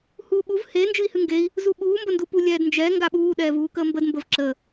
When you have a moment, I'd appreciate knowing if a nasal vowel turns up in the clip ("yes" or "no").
no